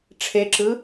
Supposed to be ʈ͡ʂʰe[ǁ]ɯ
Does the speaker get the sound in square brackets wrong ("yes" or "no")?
no